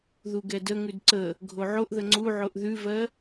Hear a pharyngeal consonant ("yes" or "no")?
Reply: yes